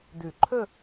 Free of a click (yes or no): no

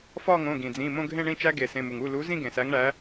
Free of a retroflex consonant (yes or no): no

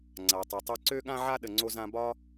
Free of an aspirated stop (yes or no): yes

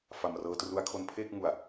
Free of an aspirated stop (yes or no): no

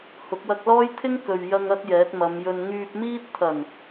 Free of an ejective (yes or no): yes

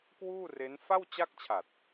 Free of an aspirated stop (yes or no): no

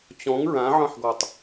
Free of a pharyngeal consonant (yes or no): no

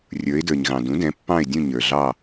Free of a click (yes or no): yes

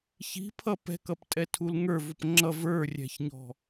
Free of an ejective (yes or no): no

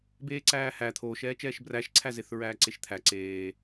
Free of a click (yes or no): no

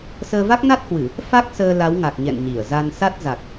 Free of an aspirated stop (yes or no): yes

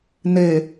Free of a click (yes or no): yes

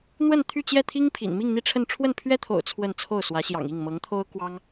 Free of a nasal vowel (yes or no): yes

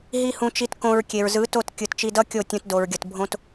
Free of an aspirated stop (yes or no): yes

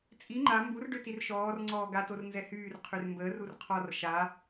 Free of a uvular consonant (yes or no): no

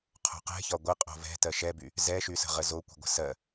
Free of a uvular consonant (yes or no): no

